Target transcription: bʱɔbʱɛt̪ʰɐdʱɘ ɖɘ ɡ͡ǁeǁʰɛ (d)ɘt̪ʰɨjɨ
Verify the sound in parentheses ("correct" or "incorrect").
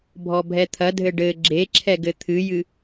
incorrect